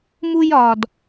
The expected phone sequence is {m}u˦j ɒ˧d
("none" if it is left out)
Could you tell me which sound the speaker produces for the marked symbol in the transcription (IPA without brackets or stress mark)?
m